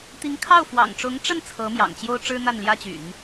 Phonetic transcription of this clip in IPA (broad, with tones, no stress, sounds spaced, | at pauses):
t̪ i˧˥ ŋ kʰ ɑ˥˩ ʊ̯ f w ɑ̰˨˩ ŋ ʈ͡ʂ ʊ˧˥ ŋ ʈ͡ʂ ə˥˩ n t͡sʰ ɤ˧˥ m j ɑ̰˨˩ ŋ t͡ɕ j o˥ ʊ̯ ʈ͡ʂ ɻ̩˥ n̪ a˥˩ n l j ä˥ t͡ɕ y̰˨˩˦ n